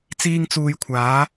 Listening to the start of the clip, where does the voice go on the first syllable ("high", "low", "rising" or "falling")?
high